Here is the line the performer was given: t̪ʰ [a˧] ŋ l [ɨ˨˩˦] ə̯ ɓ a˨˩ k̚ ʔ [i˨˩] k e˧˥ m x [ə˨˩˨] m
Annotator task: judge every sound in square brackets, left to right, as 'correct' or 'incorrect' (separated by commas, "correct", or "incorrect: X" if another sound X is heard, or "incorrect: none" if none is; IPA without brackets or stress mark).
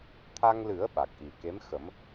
correct, correct, correct, incorrect: ə˨˩˦